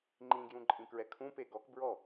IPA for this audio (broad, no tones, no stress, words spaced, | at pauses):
ŋ͡ǃĩɡjũ ǃʼĩkɹɛkʰũpe ɡɔk bɹɔ